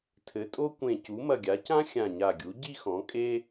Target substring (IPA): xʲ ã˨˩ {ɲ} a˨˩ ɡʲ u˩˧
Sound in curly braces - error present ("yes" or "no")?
no